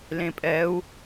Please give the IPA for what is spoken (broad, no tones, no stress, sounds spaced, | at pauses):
l ẽ pʼ ɛ u̯